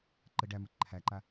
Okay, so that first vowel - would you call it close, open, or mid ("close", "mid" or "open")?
mid